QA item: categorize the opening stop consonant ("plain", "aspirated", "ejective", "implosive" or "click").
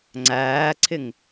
click